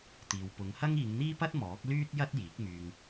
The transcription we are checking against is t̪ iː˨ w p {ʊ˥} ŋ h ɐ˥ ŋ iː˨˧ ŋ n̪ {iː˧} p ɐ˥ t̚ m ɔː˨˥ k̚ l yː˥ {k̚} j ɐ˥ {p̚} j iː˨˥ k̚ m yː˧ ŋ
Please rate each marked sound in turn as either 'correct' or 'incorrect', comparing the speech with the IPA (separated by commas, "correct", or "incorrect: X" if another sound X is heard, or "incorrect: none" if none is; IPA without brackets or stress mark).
incorrect: ʊ˨˧, incorrect: iː˥, incorrect: t̚, incorrect: t̚